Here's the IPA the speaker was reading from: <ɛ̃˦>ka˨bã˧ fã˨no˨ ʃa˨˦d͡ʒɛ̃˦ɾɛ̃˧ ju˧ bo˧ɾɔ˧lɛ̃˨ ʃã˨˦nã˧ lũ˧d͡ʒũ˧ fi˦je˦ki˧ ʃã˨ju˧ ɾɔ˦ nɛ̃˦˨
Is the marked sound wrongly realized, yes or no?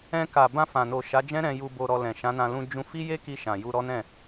yes